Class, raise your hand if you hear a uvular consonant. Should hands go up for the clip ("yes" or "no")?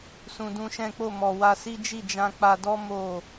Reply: no